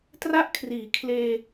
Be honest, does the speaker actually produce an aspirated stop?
yes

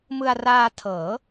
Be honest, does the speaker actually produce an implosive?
no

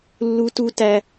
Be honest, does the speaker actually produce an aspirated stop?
no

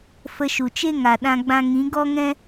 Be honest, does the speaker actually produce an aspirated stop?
no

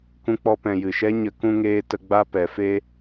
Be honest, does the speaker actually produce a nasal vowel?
yes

